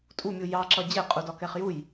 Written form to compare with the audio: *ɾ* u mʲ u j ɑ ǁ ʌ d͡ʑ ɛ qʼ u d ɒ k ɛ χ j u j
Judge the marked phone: incorrect: tʼ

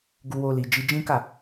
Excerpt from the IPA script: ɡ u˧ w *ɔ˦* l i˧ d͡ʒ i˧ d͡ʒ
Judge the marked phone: incorrect: o˦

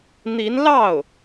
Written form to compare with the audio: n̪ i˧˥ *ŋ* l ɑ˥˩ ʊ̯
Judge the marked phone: incorrect: n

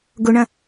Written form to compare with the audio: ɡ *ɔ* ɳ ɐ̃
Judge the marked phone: incorrect: ʊ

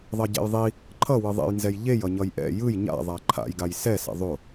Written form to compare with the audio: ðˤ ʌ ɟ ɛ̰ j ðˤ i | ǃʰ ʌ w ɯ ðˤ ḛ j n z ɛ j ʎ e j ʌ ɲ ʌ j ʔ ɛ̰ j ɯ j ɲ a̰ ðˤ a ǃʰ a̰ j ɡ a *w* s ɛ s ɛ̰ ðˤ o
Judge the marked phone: incorrect: j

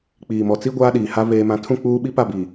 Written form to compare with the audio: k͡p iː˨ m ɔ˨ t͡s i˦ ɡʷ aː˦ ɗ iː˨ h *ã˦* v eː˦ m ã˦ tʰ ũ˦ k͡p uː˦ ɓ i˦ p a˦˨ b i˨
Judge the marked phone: incorrect: a˦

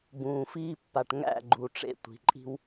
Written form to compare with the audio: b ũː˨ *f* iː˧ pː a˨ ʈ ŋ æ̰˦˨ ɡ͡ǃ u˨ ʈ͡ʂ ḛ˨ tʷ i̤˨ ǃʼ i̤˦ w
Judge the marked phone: correct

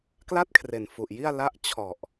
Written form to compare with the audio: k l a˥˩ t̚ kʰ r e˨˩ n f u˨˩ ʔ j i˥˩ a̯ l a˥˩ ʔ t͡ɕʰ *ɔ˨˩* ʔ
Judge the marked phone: correct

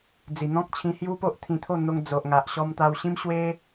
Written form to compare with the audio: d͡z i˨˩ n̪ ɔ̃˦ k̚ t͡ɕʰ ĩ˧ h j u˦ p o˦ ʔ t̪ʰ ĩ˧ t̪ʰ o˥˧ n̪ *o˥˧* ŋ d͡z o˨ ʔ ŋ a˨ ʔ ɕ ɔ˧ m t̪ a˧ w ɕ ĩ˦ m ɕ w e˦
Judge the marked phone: incorrect: o˧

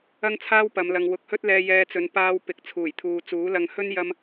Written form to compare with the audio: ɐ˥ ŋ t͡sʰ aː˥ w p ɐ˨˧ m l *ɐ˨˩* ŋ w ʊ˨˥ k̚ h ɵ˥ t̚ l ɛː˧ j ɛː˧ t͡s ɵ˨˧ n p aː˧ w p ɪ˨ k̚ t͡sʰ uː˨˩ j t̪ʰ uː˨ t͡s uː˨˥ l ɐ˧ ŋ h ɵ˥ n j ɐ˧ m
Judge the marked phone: incorrect: ɐ˨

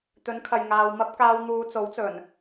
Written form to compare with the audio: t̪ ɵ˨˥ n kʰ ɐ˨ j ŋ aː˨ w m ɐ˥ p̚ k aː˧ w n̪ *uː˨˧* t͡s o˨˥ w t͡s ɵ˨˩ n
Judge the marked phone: correct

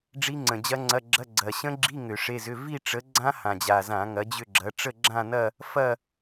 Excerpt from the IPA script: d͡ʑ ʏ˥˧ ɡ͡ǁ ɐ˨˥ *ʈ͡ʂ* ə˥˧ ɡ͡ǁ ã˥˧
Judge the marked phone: correct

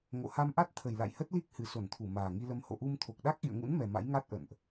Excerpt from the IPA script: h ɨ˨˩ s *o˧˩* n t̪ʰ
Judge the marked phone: correct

